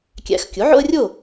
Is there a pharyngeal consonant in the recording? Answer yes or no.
yes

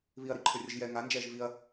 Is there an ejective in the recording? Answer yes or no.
no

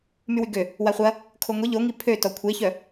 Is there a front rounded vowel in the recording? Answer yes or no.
yes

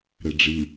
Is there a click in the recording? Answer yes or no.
no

